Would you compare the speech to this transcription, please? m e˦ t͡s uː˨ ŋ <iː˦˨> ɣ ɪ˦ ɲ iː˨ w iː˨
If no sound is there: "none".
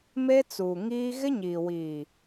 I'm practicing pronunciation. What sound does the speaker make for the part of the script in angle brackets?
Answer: iː˦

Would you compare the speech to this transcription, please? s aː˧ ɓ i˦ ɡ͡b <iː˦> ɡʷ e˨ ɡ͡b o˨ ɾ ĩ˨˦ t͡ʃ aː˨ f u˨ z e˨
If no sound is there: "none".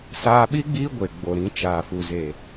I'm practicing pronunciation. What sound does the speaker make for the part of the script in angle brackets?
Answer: iː˦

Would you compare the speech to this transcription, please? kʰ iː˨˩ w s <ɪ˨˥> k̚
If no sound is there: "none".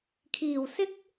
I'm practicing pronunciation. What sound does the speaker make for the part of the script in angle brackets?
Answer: ɪ˥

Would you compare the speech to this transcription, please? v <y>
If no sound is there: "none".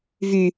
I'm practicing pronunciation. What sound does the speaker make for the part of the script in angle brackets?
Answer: y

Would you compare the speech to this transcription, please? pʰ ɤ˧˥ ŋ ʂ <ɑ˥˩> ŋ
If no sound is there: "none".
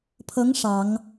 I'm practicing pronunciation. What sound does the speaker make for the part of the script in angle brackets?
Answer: ɑ˨˩˦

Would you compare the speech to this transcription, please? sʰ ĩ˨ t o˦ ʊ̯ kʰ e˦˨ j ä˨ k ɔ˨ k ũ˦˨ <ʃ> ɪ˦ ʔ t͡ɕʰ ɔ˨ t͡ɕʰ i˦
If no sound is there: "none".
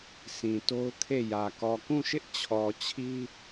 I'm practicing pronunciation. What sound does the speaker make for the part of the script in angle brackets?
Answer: ʃ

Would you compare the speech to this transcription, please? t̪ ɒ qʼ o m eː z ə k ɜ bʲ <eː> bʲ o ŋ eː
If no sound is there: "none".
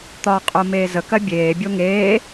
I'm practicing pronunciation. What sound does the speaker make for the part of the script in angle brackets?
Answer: eː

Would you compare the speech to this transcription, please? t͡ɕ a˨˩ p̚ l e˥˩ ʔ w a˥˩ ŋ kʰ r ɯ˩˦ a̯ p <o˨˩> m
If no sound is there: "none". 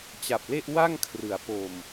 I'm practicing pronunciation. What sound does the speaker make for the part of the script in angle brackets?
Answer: o˨˩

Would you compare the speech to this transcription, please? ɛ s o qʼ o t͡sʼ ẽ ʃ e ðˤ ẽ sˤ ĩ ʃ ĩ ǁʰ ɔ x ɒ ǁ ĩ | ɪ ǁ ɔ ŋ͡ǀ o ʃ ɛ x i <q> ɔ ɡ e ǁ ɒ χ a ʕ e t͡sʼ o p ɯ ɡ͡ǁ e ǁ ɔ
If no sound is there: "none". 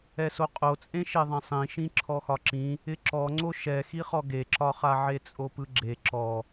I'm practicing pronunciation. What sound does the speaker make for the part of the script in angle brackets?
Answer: χ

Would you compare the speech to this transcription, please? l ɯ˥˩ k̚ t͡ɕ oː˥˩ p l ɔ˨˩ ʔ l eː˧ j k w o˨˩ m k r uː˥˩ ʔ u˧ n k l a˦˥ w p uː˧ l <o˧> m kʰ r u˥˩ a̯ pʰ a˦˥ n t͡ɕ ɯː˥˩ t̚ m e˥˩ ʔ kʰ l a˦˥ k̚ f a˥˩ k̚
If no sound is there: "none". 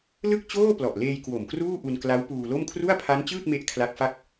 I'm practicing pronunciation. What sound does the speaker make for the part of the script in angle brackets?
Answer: o˥˩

